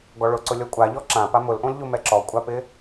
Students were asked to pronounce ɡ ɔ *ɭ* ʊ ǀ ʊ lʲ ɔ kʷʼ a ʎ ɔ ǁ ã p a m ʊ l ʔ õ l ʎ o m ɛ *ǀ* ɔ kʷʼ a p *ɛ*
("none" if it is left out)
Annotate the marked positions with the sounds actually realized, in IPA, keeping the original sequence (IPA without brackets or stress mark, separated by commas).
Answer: ɭ, ǁ, ɪ